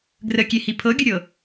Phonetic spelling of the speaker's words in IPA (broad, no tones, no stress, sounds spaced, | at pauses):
ɡ r ə kʲ e h i pʰ ɤ ɡʲ ʊ ɾʲ ɤ